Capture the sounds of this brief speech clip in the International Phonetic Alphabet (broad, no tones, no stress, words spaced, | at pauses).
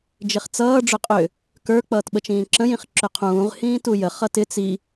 d͡ʒɪχt͡sʌː ɖ͡ʐʏqʼʏ | kə˞ k͡pʌːtɓət͡ʃĩːǁə̃j ĩχǁʏqʰũːʁ hĩːtujə χʌtɪ t͡si